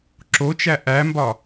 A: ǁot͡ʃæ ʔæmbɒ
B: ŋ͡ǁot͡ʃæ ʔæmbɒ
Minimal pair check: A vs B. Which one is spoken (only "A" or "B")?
A